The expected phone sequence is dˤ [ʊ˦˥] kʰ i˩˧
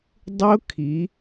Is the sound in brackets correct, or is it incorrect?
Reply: correct